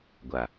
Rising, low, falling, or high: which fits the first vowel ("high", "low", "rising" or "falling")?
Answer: low